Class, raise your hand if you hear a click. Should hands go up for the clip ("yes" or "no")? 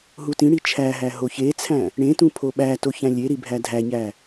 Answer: no